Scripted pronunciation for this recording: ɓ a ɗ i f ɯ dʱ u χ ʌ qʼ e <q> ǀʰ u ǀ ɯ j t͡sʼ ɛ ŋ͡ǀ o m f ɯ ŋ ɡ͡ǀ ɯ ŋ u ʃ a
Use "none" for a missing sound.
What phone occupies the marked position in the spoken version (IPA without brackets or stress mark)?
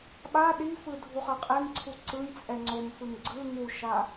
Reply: ŋ